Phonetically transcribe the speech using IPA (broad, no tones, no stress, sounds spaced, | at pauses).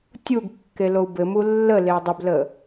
tʲ u ɡ kː e l o u̯ b ɘ m u lː ə l e dˤ ə b l ə